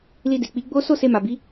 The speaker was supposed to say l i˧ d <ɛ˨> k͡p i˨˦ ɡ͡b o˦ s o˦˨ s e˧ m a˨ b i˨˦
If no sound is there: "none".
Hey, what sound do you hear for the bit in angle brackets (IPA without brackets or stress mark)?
e˨